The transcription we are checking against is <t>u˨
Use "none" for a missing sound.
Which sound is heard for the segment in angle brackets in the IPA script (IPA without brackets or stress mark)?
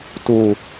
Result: t